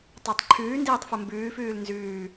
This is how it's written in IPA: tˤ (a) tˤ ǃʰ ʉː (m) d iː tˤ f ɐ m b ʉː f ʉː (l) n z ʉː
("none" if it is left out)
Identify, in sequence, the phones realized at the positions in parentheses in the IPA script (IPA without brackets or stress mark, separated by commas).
ɑ, n, l